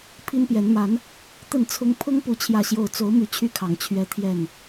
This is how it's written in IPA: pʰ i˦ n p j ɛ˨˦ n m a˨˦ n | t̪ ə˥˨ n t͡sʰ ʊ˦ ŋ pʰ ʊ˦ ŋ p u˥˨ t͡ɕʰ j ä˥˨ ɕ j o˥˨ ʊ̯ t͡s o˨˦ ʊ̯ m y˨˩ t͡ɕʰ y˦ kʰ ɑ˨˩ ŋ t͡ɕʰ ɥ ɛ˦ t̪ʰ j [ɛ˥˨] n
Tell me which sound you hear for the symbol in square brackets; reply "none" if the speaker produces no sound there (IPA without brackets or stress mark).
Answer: ɛ˥˨